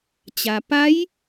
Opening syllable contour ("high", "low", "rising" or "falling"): low